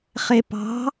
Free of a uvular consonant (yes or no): no